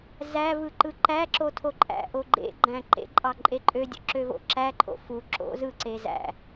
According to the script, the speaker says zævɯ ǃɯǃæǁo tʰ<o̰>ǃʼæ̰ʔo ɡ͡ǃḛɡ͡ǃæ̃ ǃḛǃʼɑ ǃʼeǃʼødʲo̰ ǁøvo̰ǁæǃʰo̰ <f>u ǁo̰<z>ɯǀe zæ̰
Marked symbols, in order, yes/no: no, yes, yes

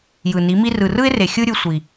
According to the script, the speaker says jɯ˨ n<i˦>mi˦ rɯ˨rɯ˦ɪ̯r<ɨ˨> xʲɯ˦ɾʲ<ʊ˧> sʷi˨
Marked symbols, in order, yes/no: no, no, no

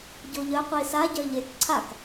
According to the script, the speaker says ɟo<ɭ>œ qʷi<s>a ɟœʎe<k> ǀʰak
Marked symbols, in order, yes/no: no, yes, yes

